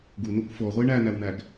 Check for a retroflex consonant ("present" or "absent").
present